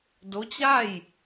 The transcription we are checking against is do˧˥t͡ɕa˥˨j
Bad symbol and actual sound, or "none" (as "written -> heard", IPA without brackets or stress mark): none